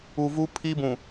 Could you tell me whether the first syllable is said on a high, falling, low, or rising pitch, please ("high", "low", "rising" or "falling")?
low